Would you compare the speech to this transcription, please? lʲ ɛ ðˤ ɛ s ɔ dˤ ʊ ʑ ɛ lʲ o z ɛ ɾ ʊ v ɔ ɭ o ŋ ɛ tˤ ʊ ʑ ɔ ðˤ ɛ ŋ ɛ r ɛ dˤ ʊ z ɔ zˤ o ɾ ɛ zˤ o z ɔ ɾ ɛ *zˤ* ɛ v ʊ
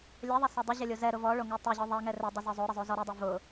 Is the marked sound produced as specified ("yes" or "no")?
no